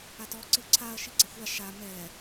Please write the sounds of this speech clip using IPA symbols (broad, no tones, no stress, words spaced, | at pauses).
atɔ ǀɯǀʰaɐ̯ ʃiɡ͡ǀaxʷa ʃa mɛ